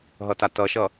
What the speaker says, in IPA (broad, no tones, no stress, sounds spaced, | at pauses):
ɦ ʌ t a t ʌ ʃ ʌ